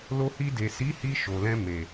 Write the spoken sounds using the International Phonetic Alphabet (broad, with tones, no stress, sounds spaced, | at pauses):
l o˧ h i˧ d e˨ s i˨˦ h i˧ ʃ o˨ l ɛ̃˧ m e˨